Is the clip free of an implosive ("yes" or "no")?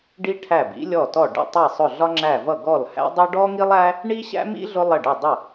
yes